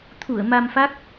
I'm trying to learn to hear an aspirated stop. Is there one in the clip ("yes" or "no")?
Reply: yes